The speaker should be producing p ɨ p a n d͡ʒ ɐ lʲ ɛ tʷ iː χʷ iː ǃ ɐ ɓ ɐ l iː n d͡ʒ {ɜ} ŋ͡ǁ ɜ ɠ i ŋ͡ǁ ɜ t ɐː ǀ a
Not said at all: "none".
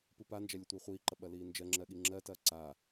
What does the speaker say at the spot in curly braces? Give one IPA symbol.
ɜ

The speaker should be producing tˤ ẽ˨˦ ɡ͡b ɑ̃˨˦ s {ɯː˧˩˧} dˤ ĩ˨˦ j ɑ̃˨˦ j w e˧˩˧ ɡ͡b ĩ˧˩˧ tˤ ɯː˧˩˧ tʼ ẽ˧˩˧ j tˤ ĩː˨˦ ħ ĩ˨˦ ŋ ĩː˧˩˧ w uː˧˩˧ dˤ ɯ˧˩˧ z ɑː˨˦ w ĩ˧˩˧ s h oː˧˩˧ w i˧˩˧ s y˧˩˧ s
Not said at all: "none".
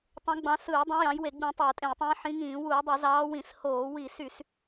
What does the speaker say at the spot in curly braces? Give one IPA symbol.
ɯː˧˩˧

